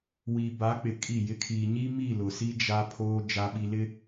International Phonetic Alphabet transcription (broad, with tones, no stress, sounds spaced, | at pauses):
w iː˨ b a˨˦ k͡p ɪ˨ kʼ i˦˨ j ɪ˦ kʰ iː˨ ɲ i˦ m i˦˨ l ʊ˨ s i˦ d͡ʒ a˦ pʰ oː˦ d͡ʒ a˦ ɓ i˦ l ɪ˦